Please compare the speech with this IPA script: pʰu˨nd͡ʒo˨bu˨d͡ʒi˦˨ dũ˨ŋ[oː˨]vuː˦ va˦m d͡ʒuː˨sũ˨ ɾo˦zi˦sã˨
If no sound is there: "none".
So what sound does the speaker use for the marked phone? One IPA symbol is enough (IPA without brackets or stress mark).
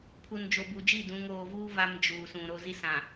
oː˨